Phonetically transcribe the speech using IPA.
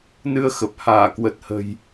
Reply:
n ɨ˧ ə̯ x ə˨˩ p̚ h aː˧˩ k w ə˨˩ t̚ h ə̤˨˩ j

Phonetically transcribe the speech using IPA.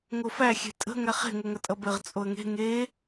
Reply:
ŋ o f æ xʲ e̤ tʼ ə̤ ŋ æ χ e̤ ŋ o ŋ ɐ tʼ ʌ b ɘ ʁ t͡sʼ o ə̯ ŋ e̤ ŋ e

